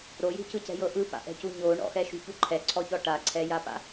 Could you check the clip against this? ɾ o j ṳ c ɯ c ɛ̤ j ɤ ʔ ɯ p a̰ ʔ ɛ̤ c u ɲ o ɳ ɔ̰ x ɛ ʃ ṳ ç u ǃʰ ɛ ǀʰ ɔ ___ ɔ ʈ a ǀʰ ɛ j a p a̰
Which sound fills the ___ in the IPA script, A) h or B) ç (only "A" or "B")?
B